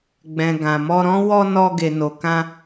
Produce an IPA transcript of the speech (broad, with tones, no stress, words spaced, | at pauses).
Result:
ɡ͡bɛ̃˨ ɡã˨mɔ˧ɾɔ̃˦ wɔ˧ nɔ˧ ɡe˨ no˨kã˧